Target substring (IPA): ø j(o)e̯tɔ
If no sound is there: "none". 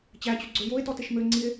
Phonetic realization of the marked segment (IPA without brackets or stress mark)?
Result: o